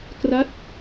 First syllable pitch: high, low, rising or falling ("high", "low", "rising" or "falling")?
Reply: falling